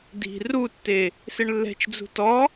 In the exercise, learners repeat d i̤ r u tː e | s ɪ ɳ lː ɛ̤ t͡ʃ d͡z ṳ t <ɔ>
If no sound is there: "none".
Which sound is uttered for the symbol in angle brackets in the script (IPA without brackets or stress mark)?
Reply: ɔ